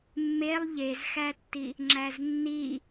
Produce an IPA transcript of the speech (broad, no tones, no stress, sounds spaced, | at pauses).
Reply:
mː e lˠ ʎ e z x æ tː i | ŋ͡ǁ æ z nː i